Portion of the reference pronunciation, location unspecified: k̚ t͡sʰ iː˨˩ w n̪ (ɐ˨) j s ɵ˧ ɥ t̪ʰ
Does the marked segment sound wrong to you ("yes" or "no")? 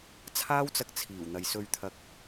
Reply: no